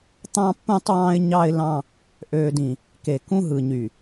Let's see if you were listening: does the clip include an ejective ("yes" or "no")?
no